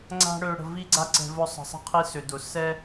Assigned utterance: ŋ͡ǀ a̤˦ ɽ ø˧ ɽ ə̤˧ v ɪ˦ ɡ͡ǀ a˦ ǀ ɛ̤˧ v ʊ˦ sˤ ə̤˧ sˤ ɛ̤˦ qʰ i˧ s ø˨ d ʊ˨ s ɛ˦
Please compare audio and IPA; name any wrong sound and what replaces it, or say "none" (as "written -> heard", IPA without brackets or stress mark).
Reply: ɪ˦ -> i˦